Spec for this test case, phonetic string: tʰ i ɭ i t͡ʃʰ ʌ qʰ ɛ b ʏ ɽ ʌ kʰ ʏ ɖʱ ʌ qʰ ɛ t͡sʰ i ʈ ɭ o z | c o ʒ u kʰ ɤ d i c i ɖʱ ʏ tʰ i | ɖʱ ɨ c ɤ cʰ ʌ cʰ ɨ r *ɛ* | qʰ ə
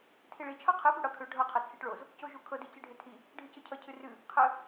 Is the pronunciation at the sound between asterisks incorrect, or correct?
incorrect